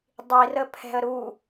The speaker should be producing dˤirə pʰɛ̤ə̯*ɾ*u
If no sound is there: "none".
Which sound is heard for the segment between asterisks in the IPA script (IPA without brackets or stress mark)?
ɾ